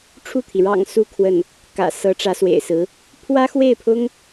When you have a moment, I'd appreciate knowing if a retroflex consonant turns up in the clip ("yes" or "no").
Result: yes